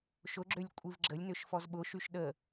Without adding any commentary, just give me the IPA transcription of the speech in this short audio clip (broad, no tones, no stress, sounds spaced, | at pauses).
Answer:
ʃ ʊ ɡ͡ǁ ø lʲ kʷʼ i v ɡ͡ǁ ə lʲ n ʏ ʃ f ɔ z ɓ ʊ ʃ y ʃ ɗ ə